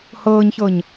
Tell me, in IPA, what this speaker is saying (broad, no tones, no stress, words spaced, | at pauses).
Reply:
hɤːɲçɤɲ